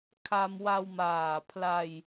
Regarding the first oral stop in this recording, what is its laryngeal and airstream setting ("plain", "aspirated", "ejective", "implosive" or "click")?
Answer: aspirated